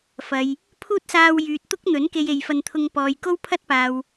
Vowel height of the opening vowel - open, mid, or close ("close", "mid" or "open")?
open